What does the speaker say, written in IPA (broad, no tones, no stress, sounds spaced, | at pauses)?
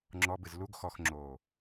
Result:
ŋ͡ǁ ɔ b ɨ z l u ɡ x ɔ x ŋ͡ǁ oː